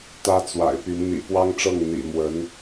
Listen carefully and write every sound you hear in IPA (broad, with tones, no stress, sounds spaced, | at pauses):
t̪ ä˥ t͡s w a̰˨˩ ɪ̯ p y˧˥ n n̪ ḭ˨˩ p w ɑ˥ ŋ ʈ͡ʂ ɤ˥˩ ŋ n̪ ḭ˨˩ m w ə˧˥ n